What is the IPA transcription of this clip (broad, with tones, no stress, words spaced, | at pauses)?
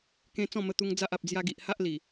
kẽ˧ t͡sɔ̃˥˧mə˧t̪u˧ŋ d͡za˦ʔa˨p̚ d͡zja˧ɡi˨ʔha˦ʔli˨˩